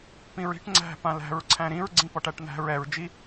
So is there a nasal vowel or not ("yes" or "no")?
yes